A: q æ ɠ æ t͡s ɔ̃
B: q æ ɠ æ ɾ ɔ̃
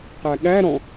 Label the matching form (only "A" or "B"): B